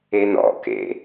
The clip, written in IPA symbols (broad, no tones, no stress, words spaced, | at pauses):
enɔ̰ kḛ